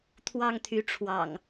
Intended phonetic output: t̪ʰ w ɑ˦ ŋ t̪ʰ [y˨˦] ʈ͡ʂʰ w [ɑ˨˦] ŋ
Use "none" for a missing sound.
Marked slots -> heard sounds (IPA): y˨˦, ɑ̰˨˩

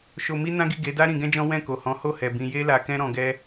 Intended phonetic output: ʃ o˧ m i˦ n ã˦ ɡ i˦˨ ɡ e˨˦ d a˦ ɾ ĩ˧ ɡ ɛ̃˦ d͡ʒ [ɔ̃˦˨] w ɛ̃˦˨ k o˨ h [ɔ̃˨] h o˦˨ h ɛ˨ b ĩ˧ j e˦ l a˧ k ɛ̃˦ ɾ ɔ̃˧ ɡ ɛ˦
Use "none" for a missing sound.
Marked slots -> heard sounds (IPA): ɔ̃˦, ɔ̃˨˦

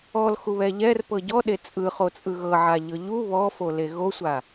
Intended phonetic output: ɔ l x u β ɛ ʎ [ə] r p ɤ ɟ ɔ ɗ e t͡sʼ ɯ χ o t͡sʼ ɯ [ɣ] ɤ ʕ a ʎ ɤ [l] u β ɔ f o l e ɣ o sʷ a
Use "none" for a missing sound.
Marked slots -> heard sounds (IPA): ɛ, ɣ, ʎ

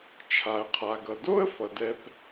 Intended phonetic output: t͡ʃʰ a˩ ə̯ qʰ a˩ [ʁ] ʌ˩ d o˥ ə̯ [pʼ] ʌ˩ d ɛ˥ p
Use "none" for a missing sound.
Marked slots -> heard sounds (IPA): ɡ, f

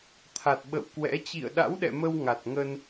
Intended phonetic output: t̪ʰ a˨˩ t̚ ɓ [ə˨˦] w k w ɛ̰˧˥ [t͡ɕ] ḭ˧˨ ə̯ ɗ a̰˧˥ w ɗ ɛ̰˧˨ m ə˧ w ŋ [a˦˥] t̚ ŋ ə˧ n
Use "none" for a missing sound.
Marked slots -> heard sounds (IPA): ə̰˧˨, t͡ɕ, a˨˩

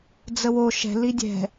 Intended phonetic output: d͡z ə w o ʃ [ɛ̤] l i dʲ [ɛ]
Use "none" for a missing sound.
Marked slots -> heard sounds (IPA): ɛ̤, ɛ̤

